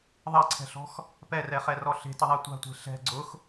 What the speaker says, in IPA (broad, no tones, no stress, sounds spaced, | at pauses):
ðˤ ɜ ǀʰ ɛ̤ ɬ ɔ̤ x | p ɛ r ɛ χ ɛ r ɔ ɬ e̤ t ə ðˤ e tʷ a̤ tʷ e̤ ɬ ɛ̤ ɡ͡ǀ ʊ x